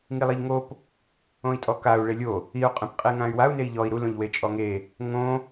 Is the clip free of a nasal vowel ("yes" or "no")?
no